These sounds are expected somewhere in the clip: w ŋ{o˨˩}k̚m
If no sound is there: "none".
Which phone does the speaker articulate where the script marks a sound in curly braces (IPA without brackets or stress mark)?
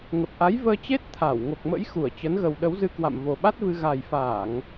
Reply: o˨˩